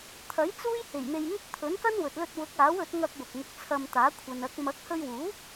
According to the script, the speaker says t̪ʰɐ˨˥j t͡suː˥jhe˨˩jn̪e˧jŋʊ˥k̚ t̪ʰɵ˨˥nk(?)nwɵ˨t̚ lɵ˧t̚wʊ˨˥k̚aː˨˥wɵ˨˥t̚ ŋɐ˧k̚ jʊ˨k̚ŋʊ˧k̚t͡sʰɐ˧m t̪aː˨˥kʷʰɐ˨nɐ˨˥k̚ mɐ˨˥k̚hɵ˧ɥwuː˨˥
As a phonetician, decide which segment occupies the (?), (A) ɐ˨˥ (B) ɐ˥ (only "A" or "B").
B